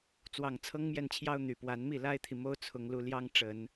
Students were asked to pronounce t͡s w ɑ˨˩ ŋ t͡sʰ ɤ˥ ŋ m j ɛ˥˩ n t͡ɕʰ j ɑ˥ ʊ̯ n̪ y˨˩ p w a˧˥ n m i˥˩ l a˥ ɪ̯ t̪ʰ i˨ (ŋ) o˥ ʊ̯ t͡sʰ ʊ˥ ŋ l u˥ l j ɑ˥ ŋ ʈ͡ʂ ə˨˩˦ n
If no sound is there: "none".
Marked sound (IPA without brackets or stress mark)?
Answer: m